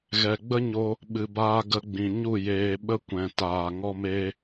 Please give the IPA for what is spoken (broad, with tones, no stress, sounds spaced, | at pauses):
ɣ ɛ˨ ɡ͡b ə˦ ɲ o˧ | ɓ ɨ˨ b aː˧ ɡ ə˧ ɡ͡b ĩ˨ ɲ u˦˨ j eː˧ ɓ ə˦ kʷ ɛ̃˨ t aː˨ ŋ ɔ˦ m eː˦